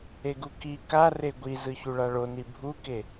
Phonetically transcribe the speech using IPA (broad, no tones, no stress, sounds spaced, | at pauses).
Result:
e ɡ u k i k a r e ɡʷ i z ɯ ç u ɭ a ɭ o n i bʱ u k e